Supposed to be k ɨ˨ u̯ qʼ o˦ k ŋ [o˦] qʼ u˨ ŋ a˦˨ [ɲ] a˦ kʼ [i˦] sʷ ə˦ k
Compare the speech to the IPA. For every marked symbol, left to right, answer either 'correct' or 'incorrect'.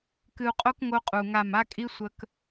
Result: correct, incorrect, correct

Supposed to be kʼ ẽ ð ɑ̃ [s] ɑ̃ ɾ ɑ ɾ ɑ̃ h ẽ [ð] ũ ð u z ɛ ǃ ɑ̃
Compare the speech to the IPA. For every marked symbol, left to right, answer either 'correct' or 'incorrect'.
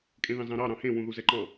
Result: incorrect, incorrect

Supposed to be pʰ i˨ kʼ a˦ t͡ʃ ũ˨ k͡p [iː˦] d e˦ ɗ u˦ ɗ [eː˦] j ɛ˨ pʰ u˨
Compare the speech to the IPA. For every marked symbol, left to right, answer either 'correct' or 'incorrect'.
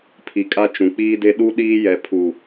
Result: correct, incorrect

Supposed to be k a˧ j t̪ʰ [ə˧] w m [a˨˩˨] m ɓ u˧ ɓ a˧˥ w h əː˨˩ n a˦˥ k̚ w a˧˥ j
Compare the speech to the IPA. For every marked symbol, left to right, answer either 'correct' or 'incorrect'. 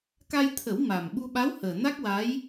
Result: incorrect, incorrect

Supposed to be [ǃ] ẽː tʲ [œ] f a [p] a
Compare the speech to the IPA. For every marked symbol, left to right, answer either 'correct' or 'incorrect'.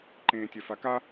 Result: correct, correct, incorrect

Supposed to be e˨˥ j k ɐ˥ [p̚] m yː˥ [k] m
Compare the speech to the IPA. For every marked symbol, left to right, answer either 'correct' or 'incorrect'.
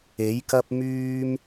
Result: correct, incorrect

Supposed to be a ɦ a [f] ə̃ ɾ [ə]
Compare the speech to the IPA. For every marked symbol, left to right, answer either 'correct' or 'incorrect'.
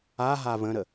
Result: incorrect, correct

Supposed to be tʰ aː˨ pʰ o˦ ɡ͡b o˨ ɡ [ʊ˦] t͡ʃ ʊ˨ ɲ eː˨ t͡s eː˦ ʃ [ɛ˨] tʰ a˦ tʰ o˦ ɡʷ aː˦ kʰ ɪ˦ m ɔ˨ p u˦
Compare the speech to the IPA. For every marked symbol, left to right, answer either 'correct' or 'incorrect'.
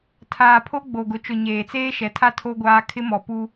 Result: incorrect, correct

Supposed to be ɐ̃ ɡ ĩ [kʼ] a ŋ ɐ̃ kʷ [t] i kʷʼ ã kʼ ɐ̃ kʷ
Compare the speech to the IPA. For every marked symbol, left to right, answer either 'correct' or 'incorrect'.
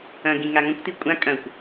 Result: incorrect, correct

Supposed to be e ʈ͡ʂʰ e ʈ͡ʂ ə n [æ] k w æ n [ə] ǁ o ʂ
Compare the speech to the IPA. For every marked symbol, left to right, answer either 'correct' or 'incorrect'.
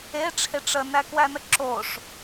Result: correct, correct

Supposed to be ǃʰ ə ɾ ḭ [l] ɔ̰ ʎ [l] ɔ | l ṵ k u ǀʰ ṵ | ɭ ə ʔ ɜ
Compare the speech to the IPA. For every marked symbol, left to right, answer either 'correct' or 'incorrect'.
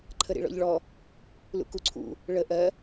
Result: incorrect, incorrect

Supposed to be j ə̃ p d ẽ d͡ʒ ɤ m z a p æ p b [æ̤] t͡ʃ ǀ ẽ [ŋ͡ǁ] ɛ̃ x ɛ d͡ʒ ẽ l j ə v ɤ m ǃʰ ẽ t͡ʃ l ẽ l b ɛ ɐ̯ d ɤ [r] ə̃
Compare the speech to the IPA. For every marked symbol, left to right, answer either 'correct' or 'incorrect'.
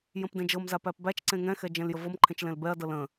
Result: incorrect, incorrect, incorrect

